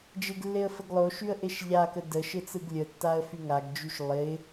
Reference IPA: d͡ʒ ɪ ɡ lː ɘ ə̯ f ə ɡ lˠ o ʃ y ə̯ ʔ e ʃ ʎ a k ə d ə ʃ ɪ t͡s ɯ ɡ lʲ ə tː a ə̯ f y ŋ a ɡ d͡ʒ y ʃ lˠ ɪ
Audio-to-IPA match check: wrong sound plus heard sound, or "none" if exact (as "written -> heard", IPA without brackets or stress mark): ɘ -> e